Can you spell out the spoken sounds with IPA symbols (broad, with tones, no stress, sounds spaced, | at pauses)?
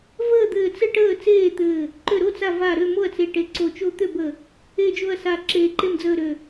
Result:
v əː˥˨ d̪ ɘː˧˩ t͡s ɘ˥˨ ʈ əː˥˨ t͡s eː˥˨ t̪ ɘː˧˩ | ǃ ø˧˩ ɾ o˥˨ t͡s a˧˩ v a˧˩ ɾ ø˥˨ m o˥˨ ɐ̯ t͡s e˧˩ ʈ e˧˩ ǀ o˧˩ t͡ʃ o˥˨ t̪ ø˥˨ b ə˧˩ | e˥˨ d͡ʒ o˥˨ ɐ̯ s a˧˩ ǁ eː˧˩ ǃ e˥˨ m d͡z əː˥˨ ɾ ø˧˩